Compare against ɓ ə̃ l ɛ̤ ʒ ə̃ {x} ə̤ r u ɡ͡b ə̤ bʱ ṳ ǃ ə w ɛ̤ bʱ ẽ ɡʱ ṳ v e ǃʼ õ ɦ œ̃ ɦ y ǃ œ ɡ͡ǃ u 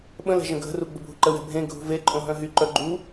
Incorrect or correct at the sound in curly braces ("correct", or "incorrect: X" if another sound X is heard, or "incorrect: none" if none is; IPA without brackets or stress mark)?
incorrect: ɡʱ